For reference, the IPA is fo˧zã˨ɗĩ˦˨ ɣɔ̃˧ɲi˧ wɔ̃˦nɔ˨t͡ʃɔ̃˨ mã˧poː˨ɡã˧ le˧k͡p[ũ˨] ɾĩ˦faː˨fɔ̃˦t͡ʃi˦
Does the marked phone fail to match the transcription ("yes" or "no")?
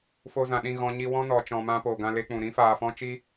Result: no